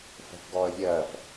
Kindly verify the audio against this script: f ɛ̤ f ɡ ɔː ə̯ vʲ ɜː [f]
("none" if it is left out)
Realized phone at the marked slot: f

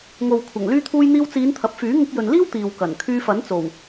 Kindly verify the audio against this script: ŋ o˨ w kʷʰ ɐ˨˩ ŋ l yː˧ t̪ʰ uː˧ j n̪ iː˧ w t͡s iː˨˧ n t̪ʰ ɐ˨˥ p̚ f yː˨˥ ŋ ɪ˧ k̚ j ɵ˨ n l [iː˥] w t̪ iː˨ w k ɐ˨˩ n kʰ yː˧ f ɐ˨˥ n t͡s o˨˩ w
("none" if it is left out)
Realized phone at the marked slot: iː˥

